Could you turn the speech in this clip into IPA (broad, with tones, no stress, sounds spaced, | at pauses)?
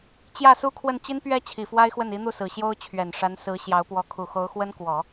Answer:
t͡ɕ j ä˥˩ s u˥ kʰ w ə˥˩ n t͡ɕ i˥ n p ɥ ɛ˥ t͡ɕʰ i˨˩ f w a˥ ɪ̯ x w ə˥˩ n i˧˥ n̪ u˥˩ s ɹ̩˨˩ ɕ j o˥ ʊ̯ t͡ɕʰ ɥ ɛ˨˩ n ʂ a˧˥ n s ɹ̩˧˥ ɕ j ɑ˧˥ ʊ̯ p w ɔ˧˥ kʰ u˨˩ x o˧˥ ʊ̯ x w ə˥ n k w ɔ˨˩˦